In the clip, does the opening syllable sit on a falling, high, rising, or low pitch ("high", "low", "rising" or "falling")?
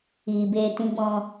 low